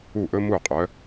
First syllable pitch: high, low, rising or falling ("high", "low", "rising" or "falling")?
falling